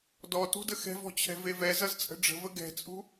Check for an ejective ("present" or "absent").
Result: present